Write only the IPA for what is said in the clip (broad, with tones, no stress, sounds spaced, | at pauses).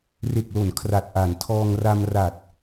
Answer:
r e˨˩ k̚ l o˩˦ n kʰ r a˨˩ t̚ ʔ a˩˦ n tʰ ɔː˧ ŋ r a˧ m r a˨˩ t̚